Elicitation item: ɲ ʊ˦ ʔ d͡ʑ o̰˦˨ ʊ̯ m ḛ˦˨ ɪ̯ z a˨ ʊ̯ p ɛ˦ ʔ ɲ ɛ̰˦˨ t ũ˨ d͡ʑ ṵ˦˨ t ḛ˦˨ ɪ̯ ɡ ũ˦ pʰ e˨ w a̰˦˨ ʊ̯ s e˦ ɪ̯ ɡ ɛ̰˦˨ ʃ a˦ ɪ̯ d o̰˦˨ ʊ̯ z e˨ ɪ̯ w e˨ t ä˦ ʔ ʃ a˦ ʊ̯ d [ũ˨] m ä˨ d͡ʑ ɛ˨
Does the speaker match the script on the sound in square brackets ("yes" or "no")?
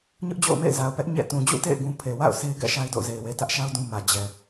no